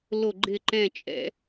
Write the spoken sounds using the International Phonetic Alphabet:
l o˧˩ ɡ͡ǃ ɪ˧˩ ǃ ɛ̃˧˩ t͡ʃʼ ɛ̰˧˩˧

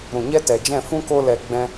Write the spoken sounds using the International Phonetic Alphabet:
ɾ ũ˨ ɲ ɛ˦ t ɛ˨ d͡ʒ ɛ̃˦˨ f ũ˦ k o˧ l ɛ˨ ɡ͡b ɛ̃˦

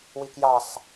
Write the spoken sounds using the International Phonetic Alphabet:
w i k j ɑ sˤ

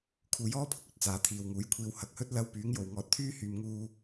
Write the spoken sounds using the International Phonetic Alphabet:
kʰ uː˨ j ɔː˥ pʰ ʊ˧ k̚ ɵ˨ t̚ t͡s aː˨˧ t̪ʰ iː˨ w ŋ uː˨˥ j kʷʰ iː˧ w h ɐ˧ k̚ h ɵ˥ t̚ l ɐ˥ w p yː˨˥ ŋ j o˨ w ŋ ɔː˧ t̚ t̪ʰ yː˥ h yː˧ m ŋ uː˥

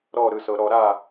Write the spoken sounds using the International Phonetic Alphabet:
ɾ ɔ˥˨ ɾ ɯ˥˨ s ɤ˨˩˦ ɾ ɔ˨˩˦ ɾ a˥˨

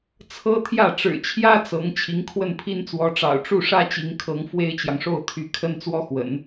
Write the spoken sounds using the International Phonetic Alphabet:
t͡sʰ ɤ˥ t̪ʰ j ä˥˩ ʈ͡ʂ ɻ̩˨˩ t͡ɕʰ j ä˥ t͡s ɤ˧˥ ŋ t͡ɕʰ i˧˥ ŋ kʰ w ə˥˩ n pʰ i˥ n t͡s w ɔ˧˥ ʈ͡ʂ ɑ̰˨˩ ʊ̯ ʈ͡ʂ u˥˩ ʂ ä˥ t͡ɕ i˧˥ ŋ kʰ ɤ˧˥ ŋ f w e˥ ɪ̯ t͡ɕ j ɑ˨ ŋ ʂ o˥˩ ʊ̯ t̪ʰ y˧˥ kʰ ə˥ n t͡s w ɔ˥ x w ə̰˨˩˦ n

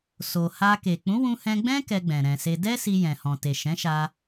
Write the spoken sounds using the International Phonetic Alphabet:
s o˨ h a˧ k e˨ k͡p ũ˨˦ w ũ˧ h ɛ̃˧ ɡ͡b ɛ̃˦ k ɛ˧ ɡ͡b ɛ̃˨ ɾ ɛ̃˨ s e˧ d ɛ˦ s i˧ j ɛ̃˨ h ɔ̃˨ t e˨ ʃ ɛ̃˨˦ ʃ a˧

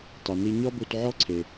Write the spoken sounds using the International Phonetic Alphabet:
tˤ i˩ n i˧ ɲ ɔ˥ b u˧ t ʕ ɔ˥ ǀʰ e˩

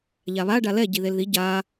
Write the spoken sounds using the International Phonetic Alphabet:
ʎ a β a ɖ a l ɛ ɟ i ð e l ð i ɟ a

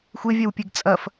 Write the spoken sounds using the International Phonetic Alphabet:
xʷ e vʲ ɛ w pʲ e ɡ t͡sʼ ɐ f

